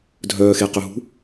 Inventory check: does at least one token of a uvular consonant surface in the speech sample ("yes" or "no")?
yes